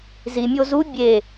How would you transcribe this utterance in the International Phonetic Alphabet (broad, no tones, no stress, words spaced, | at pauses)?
zimʲo zu bʲe